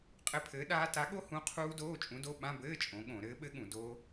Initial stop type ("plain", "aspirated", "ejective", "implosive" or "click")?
ejective